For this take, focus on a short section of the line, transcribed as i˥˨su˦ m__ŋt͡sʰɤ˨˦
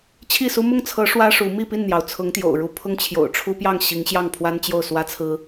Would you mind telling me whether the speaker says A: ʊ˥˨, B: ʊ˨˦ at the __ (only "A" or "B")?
A